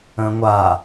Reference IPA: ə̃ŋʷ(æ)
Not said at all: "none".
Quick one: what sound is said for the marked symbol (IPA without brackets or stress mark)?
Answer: a